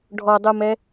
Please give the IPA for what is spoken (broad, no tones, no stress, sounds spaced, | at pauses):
ɖʱ ɔ dˤ u m ɛ